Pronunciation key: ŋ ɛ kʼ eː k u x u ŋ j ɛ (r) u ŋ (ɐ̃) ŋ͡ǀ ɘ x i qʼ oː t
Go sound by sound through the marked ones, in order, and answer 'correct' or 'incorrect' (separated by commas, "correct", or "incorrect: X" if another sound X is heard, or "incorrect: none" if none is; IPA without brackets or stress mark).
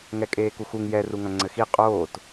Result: correct, correct